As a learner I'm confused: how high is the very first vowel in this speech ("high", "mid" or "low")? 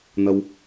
low